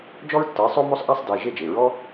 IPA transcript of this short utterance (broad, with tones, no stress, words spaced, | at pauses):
d͡ʒɔ˥ɹtːə˨˥ɪ̯ sˤo˥mo˥sˤ ʔa˥sˤde˩˧˩ ʒe˥˨d͡ʒe˩˧˩ ɹɔ˥